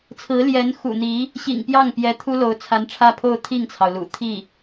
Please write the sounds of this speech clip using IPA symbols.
t͡sʰ ɹ̩˧˥ l j ɛ˧˥ n x ṵ˨˩ n̪ i˧˥ | ɕ ḭ˨˩ ŋ p j ɑ˥˩ ŋ p j ɛ˧˥ t̪ʰ u˥ l o˧˥ ʊ̯ t͡sʰ a˧˥ n ʈ͡ʂʰ ä˥˧ pʰ o˥˧ ʊ̯ t̪ʰ i˥˩ ŋ t͡sʰ ɑ˩ ʊ̯ l ṵ˨˩ t̪ʰ i˥˩

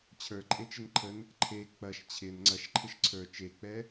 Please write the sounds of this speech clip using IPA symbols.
t͡ɕʰ ə˞ ǃʼ e t͡ʃ ɪ n ǃʰ ə n | ǃʰ e k͡p ɐ ʃ t͡ɕʰ ɪ n ŋ͡ǀ ɐ ʃ ǃʰ ɪ ʃ ǀʰ ə˞ t͡ʃ e k͡p ɛ

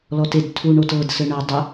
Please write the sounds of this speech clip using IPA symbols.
l ɔ t e d tʰ u ɳ o t ɤ d s ɘ ɳ ɤ dˤ ə

